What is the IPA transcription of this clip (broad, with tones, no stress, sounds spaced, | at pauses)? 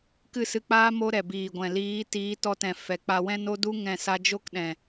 k ɨ˦˨ s ɨ˧ k͡p aː˦ m o˦ ɾ ɛ˨ b iː˨ ɡʷ ɛ̃˨ l iː˨˦ t iː˨˦ t ɔ˧ t ɛ̃˨ f ɛ˨ k͡p a˧ w ɛ̃˦ n o˦ d u˦ ŋ ɛ̃˦˨ s a˦ d͡ʒ o˦ k ɗ ɛ̃˨